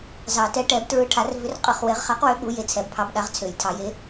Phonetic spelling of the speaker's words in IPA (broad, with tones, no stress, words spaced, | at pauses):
zɑ˨˩˦tɛ˨˥ʈɛ˨˩˦b tɹɯ˨˥ʈʰa˨˩˦rvʏ˨˥rqʼɯ˨˩˦χ we˨˩˦ʁχa˨˥qwø˨˥ ɠu˨˥je˨˥t͡sʰɛ˨˩˦bpʰɑ˨˥b ɗa˨˥ʁt͡sʰø˨˩˦jtʰɑ˨˩˦je˨˥